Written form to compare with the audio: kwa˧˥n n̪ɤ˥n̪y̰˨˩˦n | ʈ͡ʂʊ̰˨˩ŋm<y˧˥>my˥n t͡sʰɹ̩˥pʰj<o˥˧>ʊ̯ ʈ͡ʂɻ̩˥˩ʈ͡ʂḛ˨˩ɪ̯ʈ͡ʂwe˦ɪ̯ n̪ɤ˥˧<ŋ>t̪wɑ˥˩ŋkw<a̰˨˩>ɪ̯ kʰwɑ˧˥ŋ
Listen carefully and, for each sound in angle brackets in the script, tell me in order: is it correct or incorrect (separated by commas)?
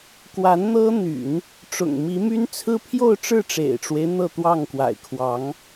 incorrect, correct, incorrect, correct